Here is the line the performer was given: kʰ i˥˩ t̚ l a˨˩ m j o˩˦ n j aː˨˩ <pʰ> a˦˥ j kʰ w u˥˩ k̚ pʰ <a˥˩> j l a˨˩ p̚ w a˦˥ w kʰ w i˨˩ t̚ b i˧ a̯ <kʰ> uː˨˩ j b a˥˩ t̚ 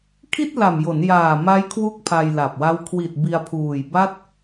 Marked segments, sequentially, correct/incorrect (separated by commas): incorrect, incorrect, incorrect